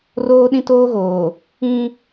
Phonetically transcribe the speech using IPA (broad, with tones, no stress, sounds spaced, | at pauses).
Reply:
r oː˦ ɗ ĩ˦ t oː˦ ɣ oː˨ | ĩ˦